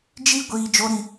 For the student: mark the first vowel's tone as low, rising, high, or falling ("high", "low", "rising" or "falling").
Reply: high